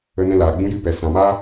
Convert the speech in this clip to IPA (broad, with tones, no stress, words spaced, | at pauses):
ə˧nɛ̃˧ laː˨ɡ͡bũ˦ jɨ˦pɛ˨ sã˨ma˦